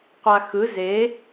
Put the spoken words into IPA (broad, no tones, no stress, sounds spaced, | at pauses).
qʷ a x ɯ z e